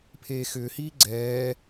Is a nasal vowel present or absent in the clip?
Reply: absent